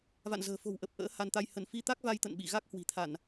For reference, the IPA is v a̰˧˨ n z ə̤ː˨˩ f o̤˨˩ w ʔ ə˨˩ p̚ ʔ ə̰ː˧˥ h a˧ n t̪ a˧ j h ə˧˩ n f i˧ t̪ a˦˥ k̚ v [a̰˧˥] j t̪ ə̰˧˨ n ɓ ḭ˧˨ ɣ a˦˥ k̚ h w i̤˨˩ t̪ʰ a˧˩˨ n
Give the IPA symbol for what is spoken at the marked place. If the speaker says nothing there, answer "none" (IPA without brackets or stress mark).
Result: a˧